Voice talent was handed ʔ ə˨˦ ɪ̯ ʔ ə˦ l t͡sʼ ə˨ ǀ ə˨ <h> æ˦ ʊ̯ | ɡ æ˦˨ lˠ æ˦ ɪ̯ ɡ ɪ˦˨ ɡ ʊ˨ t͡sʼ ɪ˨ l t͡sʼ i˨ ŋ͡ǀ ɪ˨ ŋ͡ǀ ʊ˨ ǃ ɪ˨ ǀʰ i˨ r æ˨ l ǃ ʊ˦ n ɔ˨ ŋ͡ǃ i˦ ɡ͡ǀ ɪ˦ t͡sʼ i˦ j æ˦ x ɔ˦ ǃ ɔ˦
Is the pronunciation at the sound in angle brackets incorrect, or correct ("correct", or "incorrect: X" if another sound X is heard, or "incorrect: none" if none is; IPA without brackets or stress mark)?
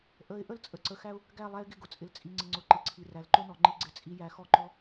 incorrect: x